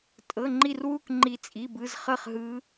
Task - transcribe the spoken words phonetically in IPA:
tʼ ɤ˧˥˧ ŋ͡ǃ i˥˧ r w u˥˧ k ŋ͡ǃ i˦˥ t͡sʼ i˧˥˧ b ɯ˧˥˧ z χ ɤ˥˧ χ ɦ ɯ˦˥

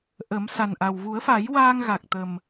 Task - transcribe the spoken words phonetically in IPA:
ʔ ə˨˩˦ m s a˨˩ n ʔ a˨˩ w v u˨˩˦ ə̯ f a˨˩˦ j w aː˧ ŋ ɣ a˨˩ k̚ t̪ ə˨˩ m

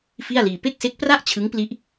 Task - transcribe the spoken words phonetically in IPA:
f i˥˩ a̯ l iː˧ p e˥˩ k̚ s e˦˥ k̚ p r a˥˩ ʔ t͡ɕʰ ɯ˦˥ ŋ p l i˦˥ ʔ

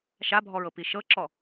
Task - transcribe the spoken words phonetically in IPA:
ʃ a bʱ ɔ ɹ ɤ p i ʃ ɤ ǁ ɔ

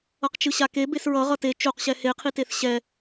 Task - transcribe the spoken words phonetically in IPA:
ʌ q t͡ʃ ɯ ɕ a k e b e s ɹ ʌ ʁ ʌ t e t͡ʃ o q ɕ ɛ h e qʰ i t e θ ɕ ɛ

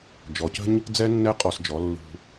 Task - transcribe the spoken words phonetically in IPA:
d͡ʒ ɔ˨ c ə̤˦ ɲ | d͡z ɛ˦ nː ɛ˦ qʼ ɔ˧ s d͡ʒ ɔ˨˦ lː ṳ˧

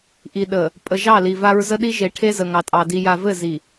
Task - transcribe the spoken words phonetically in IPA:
ʔ i˨ ɗ ə˨ | pʼ ə˨ ʒ ɑ˦˨ l i˨ v a˦ ɹ z ə˦ ɗ i˦ ʒ e˨˦ ʈʰ e˦ z ə˨ ŋ ɑ˨ tʼ ɑ˨ d i˨ j a˨ v ɘ˦˨ z i˨

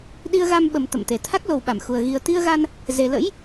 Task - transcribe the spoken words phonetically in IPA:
ɗ i˧ ə̯ ɣ a˧ m ɓ ə˨˩ m t̪ ə̰˧˨ m t̪ e˨˩ t̪ʰ a˦˥ k̚ l o˨˩ w ɓ a˧˩ m x u˨˩ ə̯ ɣ i˨˩ ə̯ t̪ i˧ ə̯ ɣ a˧ n | z e˨˩ l ə̰˧˥ j

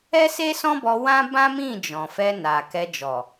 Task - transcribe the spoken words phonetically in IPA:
ɛ˦ s e˦ s ɔ̃˦ b ɔ˧ w ã˦ b ã˦ m ĩ˦˨ d͡ʒ ɔ̃˨ f ɛ˧ n a˨ k ɛ˧ d͡ʒ ɔ˨

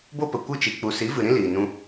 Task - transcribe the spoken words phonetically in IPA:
b o˦ p ə˨ kʷ ɨ˦˨ t͡ʃ i˨ k͡p u˨ s i˨˦ v ɨ˨ ɾ ĩ˦ l iː˨ n ũ˧

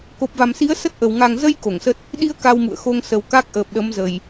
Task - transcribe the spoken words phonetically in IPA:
k o˨˩ p̚ v a˨˩ m s i˨˦ ə̯ s ə˦˥ t̚ ʔ ə˨˩ w ŋ a˨˩ ŋ z ə˧ j k o˧˩ ŋ s ə˦˥ t̚ | ɗ i˧ ə̯ k a˧ w m ṵ˧˨ ə̯ x o˧ ŋ s ə˨˩ w k a˦˥ k̚ ʔ əː˨˩ p̚ ɗ ə˨˦ m z ə˨˩ j

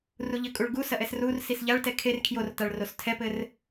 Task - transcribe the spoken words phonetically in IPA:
r u ʎ ɘ kʼ u ɭ ɡ u s ɐ ʔ ɛ s r u r s i s ʎ a ɭ t ɛ kʰ e r kʰ j o r t a ɭ r o s tʰ ɛ p ɘ r

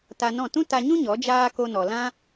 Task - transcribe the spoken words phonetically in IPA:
t a˧ n ɔ̃˦˨ t ũ˦ t a˧ ɲ ũ˦ ɲ ɔ˨˦ d͡ʒ aː˦ k o˦ n ɔ˧ l ã˦

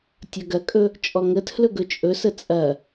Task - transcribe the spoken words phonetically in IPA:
tʲ ɐ ɡ ɐ kʼ ɵ | t͡ʃʼ ɔ ŋ ə tʰ l ɵ ɡ ɵ t͡ʃʼ ɵ s ə t͡sʼ ɐ

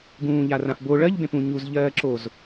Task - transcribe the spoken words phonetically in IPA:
ɡ ũː ʎ a r ã f b o ɭ ɜ ʎ b ẽ p ũ ɲ u z ʎ ɜː ǁ o z

